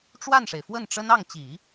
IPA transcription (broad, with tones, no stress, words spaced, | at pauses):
ʈ͡ʂwa˥˩nʂe˩ɪ̯fwə˥˩nʈ͡ʂə˥n ɑ˥˩ŋ t͡ɕi˨˩˦